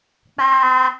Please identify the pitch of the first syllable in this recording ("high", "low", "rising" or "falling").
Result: low